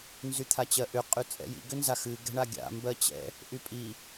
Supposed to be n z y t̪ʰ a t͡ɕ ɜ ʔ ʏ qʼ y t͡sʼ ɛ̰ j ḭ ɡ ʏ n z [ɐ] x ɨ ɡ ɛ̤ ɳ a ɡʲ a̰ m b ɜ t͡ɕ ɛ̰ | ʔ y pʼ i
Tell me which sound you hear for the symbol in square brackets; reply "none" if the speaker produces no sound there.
a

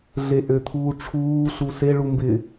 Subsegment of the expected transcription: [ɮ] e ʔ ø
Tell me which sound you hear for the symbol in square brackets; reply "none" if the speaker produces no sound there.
ɮ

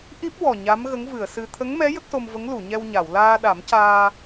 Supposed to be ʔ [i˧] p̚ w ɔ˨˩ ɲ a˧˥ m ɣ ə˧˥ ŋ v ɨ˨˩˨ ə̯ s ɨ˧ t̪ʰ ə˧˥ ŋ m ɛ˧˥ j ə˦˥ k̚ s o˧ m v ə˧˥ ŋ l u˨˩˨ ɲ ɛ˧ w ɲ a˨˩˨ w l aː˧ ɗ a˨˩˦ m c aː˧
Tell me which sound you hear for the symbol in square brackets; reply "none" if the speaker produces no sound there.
i˦˥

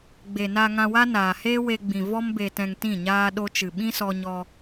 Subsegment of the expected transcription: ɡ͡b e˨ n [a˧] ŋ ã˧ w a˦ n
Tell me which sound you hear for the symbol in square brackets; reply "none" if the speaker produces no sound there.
a˧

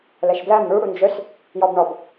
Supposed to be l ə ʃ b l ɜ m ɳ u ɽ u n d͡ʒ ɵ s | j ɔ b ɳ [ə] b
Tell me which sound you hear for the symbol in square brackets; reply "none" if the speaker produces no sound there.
ɔ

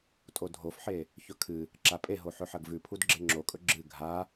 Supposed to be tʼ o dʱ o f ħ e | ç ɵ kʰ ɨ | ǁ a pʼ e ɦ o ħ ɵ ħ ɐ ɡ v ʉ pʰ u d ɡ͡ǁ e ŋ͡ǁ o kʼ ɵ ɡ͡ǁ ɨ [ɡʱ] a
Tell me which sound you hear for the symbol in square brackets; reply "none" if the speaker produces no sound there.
ɡʱ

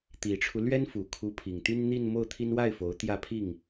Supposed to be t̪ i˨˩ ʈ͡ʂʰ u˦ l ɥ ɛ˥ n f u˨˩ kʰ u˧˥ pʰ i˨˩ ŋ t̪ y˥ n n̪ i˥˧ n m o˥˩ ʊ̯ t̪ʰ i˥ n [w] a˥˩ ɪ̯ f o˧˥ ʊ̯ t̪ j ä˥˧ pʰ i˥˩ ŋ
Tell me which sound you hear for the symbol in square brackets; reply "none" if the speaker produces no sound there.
w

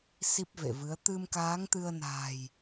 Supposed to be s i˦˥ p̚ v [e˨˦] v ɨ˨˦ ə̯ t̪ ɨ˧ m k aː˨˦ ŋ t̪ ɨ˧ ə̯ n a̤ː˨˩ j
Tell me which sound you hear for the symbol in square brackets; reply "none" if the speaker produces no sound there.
ḛ˧˨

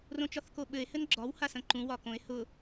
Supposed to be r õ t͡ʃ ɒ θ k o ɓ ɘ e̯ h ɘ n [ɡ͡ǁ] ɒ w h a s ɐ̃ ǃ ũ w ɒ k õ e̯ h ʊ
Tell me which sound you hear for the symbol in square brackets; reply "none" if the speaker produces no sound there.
ɡ͡ǁ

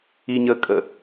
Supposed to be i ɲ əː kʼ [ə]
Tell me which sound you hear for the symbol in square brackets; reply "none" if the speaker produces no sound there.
ə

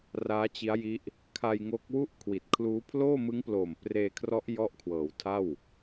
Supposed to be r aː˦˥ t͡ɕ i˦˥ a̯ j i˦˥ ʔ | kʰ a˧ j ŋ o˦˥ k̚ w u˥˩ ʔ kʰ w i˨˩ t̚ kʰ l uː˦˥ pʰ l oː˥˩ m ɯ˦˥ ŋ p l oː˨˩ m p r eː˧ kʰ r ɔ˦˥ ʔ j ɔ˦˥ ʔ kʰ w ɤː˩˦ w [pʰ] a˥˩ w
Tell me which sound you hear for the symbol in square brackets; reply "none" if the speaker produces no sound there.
tʰ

